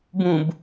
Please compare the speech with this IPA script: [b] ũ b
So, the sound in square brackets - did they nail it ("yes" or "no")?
yes